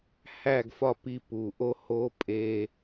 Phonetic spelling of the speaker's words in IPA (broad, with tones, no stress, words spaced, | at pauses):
hæ˦˨ɡfɒ˦˨pi˧ pu˨ʔo˦ ho˦ pʼe˧